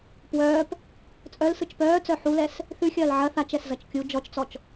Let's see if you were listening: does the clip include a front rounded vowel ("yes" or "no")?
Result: yes